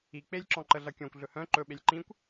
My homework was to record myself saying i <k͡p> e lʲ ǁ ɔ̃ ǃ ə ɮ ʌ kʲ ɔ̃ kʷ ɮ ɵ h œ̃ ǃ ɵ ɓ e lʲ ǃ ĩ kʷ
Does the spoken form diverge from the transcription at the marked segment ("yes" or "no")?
no